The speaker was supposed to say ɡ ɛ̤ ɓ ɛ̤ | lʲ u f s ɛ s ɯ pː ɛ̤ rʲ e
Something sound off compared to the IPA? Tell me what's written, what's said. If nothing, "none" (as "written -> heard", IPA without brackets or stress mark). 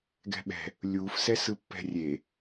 none